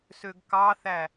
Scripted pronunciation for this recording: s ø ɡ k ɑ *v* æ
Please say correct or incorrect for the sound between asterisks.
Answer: incorrect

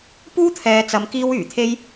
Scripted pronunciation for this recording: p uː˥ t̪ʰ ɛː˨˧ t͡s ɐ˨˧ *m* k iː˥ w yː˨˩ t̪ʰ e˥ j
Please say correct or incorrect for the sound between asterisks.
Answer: correct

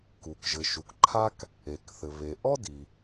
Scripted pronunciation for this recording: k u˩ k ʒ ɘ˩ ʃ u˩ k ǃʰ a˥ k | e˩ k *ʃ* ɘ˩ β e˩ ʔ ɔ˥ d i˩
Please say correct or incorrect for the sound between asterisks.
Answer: incorrect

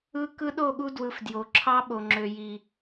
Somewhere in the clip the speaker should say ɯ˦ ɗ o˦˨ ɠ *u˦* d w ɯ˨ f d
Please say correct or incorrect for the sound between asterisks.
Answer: correct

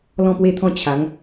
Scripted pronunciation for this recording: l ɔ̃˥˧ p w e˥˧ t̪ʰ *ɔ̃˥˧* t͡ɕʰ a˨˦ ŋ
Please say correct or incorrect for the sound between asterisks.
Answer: correct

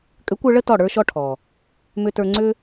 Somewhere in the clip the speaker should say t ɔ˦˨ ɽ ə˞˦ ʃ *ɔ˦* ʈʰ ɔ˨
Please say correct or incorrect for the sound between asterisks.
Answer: correct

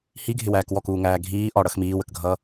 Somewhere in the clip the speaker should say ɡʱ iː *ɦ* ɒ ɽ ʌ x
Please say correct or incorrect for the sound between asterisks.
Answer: incorrect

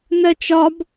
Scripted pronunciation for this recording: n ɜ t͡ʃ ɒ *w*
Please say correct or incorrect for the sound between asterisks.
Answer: incorrect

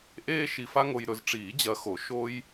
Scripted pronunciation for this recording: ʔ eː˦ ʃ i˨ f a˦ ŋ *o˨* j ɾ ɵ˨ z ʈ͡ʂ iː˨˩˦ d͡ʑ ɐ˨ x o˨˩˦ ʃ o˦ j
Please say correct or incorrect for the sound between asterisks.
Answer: correct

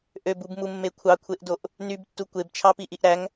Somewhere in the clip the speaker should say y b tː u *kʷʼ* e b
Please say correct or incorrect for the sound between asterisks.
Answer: incorrect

